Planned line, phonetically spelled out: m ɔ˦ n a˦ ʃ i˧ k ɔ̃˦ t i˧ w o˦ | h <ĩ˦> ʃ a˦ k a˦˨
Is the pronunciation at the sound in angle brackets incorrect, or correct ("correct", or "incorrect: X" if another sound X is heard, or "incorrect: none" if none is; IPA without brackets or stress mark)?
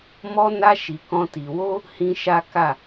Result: correct